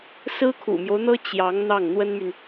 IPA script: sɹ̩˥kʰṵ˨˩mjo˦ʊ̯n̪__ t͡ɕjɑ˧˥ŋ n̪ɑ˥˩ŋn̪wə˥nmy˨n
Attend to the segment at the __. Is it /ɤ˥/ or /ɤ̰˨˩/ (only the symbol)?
ɤ˥